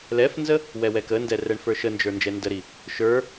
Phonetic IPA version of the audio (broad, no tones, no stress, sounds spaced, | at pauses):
l ɛ f n z ə | w ɛ w ɛ k ə n d ɛ r ɛ ɳ f ə˞ ʃ ə n d͡ʒ ə˞ n d͡ʒ ɛ n d ə ɾ i | ʃ ə˞